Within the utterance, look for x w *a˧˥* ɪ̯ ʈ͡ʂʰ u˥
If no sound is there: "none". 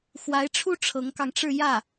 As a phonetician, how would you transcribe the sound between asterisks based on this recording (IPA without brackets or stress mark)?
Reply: a˧˥